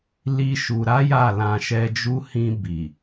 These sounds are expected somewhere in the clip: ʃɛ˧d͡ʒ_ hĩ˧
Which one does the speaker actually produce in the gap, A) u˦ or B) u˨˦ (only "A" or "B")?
A